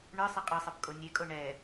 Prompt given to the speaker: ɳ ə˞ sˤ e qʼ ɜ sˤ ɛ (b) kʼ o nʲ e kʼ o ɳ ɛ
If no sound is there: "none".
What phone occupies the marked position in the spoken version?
b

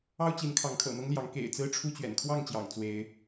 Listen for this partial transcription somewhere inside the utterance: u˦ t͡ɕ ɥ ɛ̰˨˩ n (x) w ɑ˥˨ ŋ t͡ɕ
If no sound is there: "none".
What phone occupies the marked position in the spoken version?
kʰ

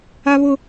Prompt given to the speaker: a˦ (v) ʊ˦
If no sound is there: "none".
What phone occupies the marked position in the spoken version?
β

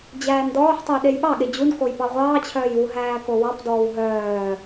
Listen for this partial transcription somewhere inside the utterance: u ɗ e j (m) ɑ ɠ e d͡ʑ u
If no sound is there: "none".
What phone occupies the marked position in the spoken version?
ɓ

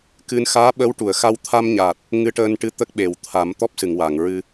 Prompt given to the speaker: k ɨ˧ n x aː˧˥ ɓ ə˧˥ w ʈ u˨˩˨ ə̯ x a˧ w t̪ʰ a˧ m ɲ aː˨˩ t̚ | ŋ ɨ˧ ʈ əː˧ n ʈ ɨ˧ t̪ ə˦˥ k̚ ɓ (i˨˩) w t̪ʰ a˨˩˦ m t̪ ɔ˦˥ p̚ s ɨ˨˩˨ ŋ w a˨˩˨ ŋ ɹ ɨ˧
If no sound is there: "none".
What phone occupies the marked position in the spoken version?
e˨˩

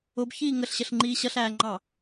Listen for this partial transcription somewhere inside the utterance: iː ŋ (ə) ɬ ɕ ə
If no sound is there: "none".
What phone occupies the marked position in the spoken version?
ə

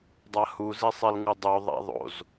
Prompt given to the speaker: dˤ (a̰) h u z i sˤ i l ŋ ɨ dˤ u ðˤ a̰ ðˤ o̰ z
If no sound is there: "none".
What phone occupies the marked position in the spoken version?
a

